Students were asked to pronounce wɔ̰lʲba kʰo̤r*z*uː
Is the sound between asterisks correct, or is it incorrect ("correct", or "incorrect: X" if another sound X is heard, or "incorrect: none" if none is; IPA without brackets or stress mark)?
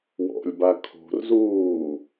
correct